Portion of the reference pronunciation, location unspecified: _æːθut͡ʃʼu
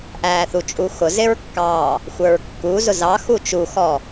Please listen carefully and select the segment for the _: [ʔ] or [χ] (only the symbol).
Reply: ʔ